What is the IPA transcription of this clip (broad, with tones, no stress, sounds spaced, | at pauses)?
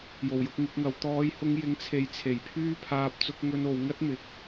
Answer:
j o˨˩ w j ʊ˧ k̚ ŋ ɪ˨˥ k̚ ŋ ɐ˨˧ w t̪ ɔː˨˧ j h ʊ˧ ŋ j ɪ˨˧ ŋ t͡sʰ e˨˧ j t͡sʰ e˨˩ j pʰ yː˥ pʰ aː˧ p̚ t͡s ʊ˧ k̚ ŋ ɵ˧ n o˨˧ w ŋ ɐ˥ t̚ m ɪ˨ k̚